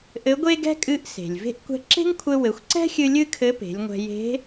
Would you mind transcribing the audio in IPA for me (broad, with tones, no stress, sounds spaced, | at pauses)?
ʔ ɘ˧˥ ɡʷ e˥ ɡ ɛ̤˥ kʼ ɨ˧˥ ʔ s e̤˩ lʲ v e̤˥ ʔ kʷ ɛ̤˧ ǁ e̤˥ ŋ kʷʰ ɘ˧ w ɘ˩˧ xʷ ǀ ɛ̤˥ xʲ ɨ˧ lʲ ɨ˥ kʰ ɘ˧˥ p e̤˩˧ lʲ ŋʷ ɛ̤˧ j e̤˧˥